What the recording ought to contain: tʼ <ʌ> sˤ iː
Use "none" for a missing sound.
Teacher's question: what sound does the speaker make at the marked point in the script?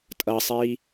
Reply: ʌ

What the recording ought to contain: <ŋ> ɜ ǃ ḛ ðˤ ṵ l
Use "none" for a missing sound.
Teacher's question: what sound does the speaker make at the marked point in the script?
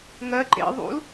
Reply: ŋ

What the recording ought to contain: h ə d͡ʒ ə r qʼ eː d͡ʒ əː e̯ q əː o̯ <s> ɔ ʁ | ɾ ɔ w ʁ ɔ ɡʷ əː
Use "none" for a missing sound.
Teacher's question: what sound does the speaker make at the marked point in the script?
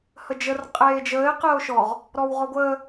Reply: ʃ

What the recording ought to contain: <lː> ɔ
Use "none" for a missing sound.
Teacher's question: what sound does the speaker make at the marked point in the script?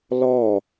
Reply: l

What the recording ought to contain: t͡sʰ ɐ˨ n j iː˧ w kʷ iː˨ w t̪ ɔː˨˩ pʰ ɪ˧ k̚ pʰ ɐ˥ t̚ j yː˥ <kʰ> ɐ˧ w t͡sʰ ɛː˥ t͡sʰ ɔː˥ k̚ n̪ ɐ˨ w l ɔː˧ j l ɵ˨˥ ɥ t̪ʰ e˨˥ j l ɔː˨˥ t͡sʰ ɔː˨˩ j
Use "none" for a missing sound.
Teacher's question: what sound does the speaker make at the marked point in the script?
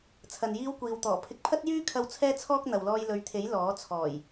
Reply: kʰ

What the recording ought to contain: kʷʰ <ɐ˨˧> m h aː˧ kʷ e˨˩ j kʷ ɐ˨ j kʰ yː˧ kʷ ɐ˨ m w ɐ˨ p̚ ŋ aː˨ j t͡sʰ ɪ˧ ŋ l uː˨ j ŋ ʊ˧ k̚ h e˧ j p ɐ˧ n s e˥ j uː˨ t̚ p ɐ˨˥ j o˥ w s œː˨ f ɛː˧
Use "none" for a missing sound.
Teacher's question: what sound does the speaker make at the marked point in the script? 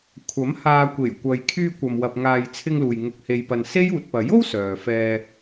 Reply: ɐ˨˥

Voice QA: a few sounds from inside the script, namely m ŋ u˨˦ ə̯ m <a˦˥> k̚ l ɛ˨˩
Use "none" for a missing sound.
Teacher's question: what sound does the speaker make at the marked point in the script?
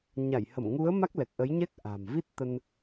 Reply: a˦˥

